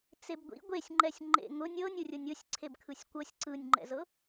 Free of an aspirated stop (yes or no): no